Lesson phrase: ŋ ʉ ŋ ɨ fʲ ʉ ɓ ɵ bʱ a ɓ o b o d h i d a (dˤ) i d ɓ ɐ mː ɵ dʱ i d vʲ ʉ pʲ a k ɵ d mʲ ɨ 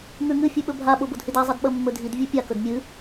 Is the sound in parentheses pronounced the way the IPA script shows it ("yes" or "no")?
no